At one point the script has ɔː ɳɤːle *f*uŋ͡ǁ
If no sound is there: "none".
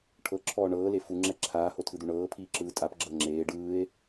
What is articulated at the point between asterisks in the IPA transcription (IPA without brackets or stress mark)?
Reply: f